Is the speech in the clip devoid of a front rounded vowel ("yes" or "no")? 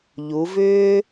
no